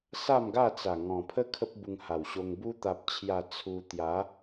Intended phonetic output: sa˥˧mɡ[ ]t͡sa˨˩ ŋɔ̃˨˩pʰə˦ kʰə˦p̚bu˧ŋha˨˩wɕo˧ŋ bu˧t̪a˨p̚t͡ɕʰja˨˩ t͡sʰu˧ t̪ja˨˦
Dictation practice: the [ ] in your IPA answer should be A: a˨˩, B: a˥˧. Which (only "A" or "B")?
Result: B